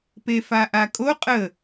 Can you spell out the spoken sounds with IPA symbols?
p e f a ʔ a kʼ o qʼ ə

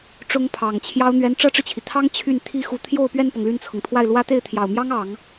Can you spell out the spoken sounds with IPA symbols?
ʈ͡ʂ ʊ˥ ŋ pʰ ɑ˨˩ ŋ t͡ɕʰ j ɑ˥ ʊ̯ n̪ ɥ ɛ˧˥ n ʈ͡ʂ ɤ˥ ʈ͡ʂ ɻ̩˨ t͡ɕʰ i˩ t̪ʰ ɑ˥ ŋ t͡ɕʰ y˥˩ n t̪ʰ i˥ x u˧˥ t̪ʰ j o˥˧ ʊ̯ p ɥ ɛ˥˩ n p ɤ˩ ŋ l y˥˩ n t͡sʰ ɤ˩ ŋ t̪ʰ w a˥˩ ɪ̯ l w ä˥ t̪ e˥˩ ɪ̯ t̪ʰ j ɑ˨˩ ʊ̯ m j ɑ˥ ŋ ɑ˨˩˦ ŋ

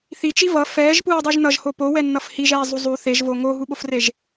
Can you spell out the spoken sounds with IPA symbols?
θ i t͡ʃ i v ʌ f ɛː ʒ p uː dˤ u ʒ n ʌ ʒ h o p o w ɛ nː ʌ f h i ʒ ɛː zˤ u zˤ u θ e ʒ v o ŋ o ɦ u ɓ o f r e ʒ

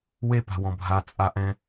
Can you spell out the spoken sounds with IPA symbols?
w e p a̤ w ɔ̃ bʱ a t͡sʼ a ʔ ɛ̃

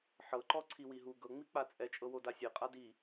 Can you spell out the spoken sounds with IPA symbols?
ħ ɤ ǃ ɔ ǀʰ i w i ɦ u ɡ ɤ ŋ͡m i k͡p a t͡sʼ ɛ t͡ʃʼ ɤ w o d a sʲ e qʼ a d i

